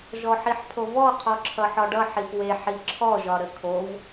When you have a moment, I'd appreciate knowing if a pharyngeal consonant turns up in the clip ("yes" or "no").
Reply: yes